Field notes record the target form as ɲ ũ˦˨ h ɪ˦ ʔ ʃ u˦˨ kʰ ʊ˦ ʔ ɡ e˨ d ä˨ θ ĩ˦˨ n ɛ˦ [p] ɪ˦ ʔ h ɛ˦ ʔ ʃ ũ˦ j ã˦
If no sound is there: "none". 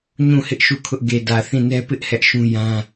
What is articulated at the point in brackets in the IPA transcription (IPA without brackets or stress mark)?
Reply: p